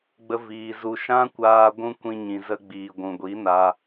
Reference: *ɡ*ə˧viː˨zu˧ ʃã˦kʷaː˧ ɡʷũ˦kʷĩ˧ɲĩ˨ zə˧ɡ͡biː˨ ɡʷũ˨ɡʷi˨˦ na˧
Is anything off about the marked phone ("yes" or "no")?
yes